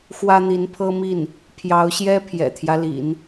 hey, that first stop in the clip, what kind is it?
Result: aspirated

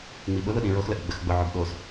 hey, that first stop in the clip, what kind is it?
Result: implosive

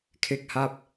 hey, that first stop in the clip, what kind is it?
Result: aspirated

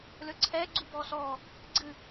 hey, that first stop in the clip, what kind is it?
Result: click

